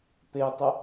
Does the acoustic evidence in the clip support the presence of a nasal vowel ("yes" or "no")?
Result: no